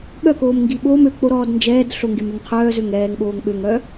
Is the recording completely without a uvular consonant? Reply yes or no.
no